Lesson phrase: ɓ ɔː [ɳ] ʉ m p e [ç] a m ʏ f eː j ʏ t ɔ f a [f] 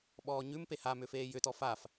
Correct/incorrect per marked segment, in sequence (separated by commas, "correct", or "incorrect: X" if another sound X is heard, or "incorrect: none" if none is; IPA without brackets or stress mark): incorrect: ɲ, incorrect: h, correct